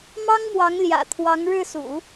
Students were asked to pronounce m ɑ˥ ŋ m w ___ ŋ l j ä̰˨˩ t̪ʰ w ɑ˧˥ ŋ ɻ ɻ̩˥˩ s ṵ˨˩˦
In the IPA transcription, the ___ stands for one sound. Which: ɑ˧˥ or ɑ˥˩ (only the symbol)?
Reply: ɑ˧˥